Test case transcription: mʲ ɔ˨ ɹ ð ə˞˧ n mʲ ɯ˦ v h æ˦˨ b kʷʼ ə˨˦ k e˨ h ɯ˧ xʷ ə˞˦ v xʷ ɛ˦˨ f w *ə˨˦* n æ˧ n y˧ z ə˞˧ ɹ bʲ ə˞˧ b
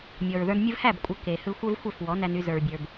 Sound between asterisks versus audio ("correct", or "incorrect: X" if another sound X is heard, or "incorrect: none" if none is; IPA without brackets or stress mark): incorrect: ɔ˨˦